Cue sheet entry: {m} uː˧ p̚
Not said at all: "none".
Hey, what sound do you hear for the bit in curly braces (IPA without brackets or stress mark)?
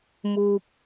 m